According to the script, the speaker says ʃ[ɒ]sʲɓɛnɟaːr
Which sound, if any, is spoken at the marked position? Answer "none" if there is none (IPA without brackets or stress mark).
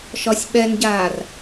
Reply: ɒ